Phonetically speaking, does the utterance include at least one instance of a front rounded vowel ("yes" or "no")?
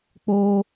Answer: no